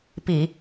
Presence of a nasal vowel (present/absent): absent